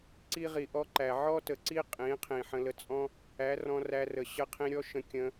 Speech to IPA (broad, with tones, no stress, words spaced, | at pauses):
ǀi˧ʁi˨ʔɔ˧ǃæ˨ ʕɔ˦tə˨ǀi˦ qʼĩ˨˦qʰĩ˨ ħə̃˧lə˧ t͡sʼɔ̃˦ | æ˨˦rɔ̃˧ræ˧rə˨ ɕə˧qʰĩ˧ɾʲɔ˦ ʃə̃˧ kʲə̃˧